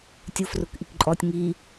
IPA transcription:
tʲ ʊ f r ʊ k ʔ i k ǃʼ ɔ tʲ ŋ i

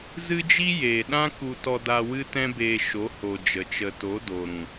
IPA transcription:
z ɨ˦ d͡ʒ i˦ j eː˨ ɗ ã˦ k u˧ t ɔ˧ d a˧ w ɨ˦ t ɛ̃˦ b eː˧ ʃ o˨˦ h o˨ d͡ʒ ə˨ t͡ʃ ə˨ t o˨˦ d o˨ ɾ ũ˨

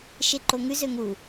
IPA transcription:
ʃ e ǃ o ŋ ʉ z ø ŋ u

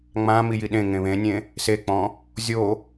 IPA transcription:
ŋ͡m ã m i j i ɗ ẽ ŋ ẽ β ẽ nʲ ẽ | s e k͡p ɔ̃ | zʲ o

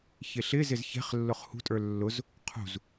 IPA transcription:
ç ɪ ɬ ɪ z ɪ z ç ɛ̤ χ lː ʊ χ h ṳ tʼ ə˞ lː ʊ z | qʰ ṳ z

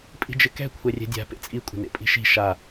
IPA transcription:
pʼ i̤ d͡ʒ ɪ k ɛ̤ kʷʰ ɛ rʲ ɛ̤ dʲ a̤ p ḛ t͡sʼ i kʷʼ ə̤ n ḛ pʼ i̤ ʃ i̤ ʃ a

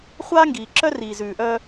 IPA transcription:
χʷ aː˦ ŋ ɡ iː˨ ǁ œ˦ r iː˨ z ʉː˨ ʔ œː˦

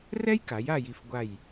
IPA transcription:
r ɛ˥ j k a˩˧ j a˥˧ j i˧ f ɡʷ a˧˩ j

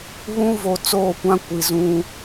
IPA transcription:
β ũ˦ v o˨ t͡s oː˦˨ kʷ ã˦ kʷ i˨ z ũ˦

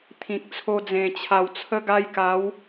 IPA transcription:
t̪ʰ ĩ˨ k̚ t͡sʰ o˧ d͡z ẽ˨˩ t͡ɕʰ a˨˩ w t͡sʰ ə˧ ɡ a˧ j k a˨˦ w

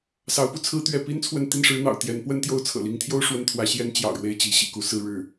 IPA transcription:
s ɑ˧˥ ʊ̯ p u˥˩ t͡sʰ ɹ̩˥ t̪ ɥ ɛ˧˥ p i˥ n t͡sʰ w ə˥˧ n t̪ i˥˩ n ʂ ɻ̩˧˥ n̪ ɑ̰˨˩ ʊ̯ t̪ j ɛ˧˥ n p w ə˥ n t̪ j o˥˩ ʊ̯ t͡sʰ ɤ̰˨˩ l i˧˥ ŋ t̪ʰ j o˥ ʊ̯ ʂ w ə˥ n t̪ʰ w ä˧˥ ɕ j ɛ˥ n t͡ɕ j ɑ̰˨˩ ʊ̯ ɻ w e˥˩ ɪ̯ t͡ɕ i˧˥ ɕ ḭ˨˩ k u˥˧ s ɹ̩˥˧ ɻ ɻ̩˥˩

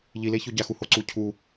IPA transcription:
ʎ i l e ç o ɟ a x u h o ǀ u cʰ u

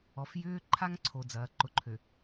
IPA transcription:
ɔ˨ f j ʏː˦ ǃʰ a˦ ŋ ǀʰ o˨ d͡z ɐː˨ ǃ ʊ˨ ǃʰ ø˨

